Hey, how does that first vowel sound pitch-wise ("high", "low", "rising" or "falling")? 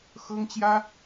high